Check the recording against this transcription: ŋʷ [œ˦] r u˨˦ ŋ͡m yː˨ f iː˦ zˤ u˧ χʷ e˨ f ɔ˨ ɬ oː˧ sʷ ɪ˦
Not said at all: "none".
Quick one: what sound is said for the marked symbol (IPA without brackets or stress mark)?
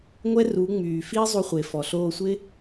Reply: ɛ˦